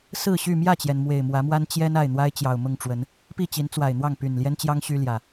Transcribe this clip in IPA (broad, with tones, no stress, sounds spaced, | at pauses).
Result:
s ɹ̩˥˨ ɕ y˥˨ m j ä˥˨ t͡ɕ j ɛ˩ n m w e˨˩ ɪ̯ m w ä˨˦ m w a˦ n t͡ɕ j ɛ˦ n a˥˨ ɪ̯ n̪ w a˦ ɪ̯ t͡ɕ j ɑ˨˩ ʊ̯ m ʊ˥˨ ŋ ʈ͡ʂ w ə˨˦ n | p i˥˨ t͡ɕ i˨˦ n t͡s w a˨˩ ɪ̯ n̪ w ɑ˥˨ ŋ p y˨˩ n l j ɛ˦ n t͡ɕ j ɑ˦ ŋ ɕ y˦ l j ä˨˩